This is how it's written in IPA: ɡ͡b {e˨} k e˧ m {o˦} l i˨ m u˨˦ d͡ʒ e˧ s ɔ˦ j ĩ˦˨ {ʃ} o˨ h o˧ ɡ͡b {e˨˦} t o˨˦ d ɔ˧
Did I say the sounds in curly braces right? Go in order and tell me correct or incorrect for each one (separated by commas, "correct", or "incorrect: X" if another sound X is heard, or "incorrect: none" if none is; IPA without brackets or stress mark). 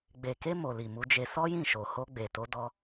correct, incorrect: o˨, correct, incorrect: e˨